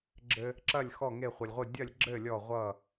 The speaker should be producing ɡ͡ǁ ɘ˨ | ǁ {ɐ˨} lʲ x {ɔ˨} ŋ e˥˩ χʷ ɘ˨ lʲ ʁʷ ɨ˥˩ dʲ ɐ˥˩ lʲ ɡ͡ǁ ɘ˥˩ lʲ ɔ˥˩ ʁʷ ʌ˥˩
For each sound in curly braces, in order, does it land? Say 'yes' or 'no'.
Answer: no, no

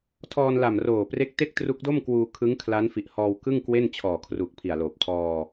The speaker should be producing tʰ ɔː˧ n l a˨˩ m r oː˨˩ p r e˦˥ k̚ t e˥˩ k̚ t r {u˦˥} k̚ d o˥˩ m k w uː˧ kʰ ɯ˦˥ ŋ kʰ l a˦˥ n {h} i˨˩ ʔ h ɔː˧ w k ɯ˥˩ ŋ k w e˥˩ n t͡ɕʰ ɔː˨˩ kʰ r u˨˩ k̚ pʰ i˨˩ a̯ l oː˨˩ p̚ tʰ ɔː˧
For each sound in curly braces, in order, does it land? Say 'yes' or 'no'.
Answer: yes, no

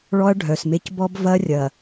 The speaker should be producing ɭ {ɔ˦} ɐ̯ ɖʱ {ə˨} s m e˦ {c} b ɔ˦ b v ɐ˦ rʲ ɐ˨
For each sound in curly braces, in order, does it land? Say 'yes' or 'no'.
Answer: yes, no, yes

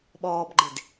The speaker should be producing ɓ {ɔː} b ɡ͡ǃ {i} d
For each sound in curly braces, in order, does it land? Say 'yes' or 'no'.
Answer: yes, no

